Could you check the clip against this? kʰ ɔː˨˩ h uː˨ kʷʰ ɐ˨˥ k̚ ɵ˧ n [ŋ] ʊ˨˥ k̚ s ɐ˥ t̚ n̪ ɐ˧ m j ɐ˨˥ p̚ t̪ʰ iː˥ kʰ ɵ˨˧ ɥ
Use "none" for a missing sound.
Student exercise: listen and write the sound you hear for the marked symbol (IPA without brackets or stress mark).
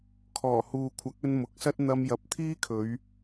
m